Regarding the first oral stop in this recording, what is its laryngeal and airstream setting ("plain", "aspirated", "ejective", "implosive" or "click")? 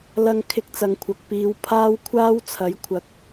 aspirated